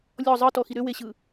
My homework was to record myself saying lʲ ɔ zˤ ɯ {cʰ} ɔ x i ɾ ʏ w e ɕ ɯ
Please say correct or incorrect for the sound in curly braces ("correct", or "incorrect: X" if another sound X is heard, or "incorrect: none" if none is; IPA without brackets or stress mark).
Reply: incorrect: t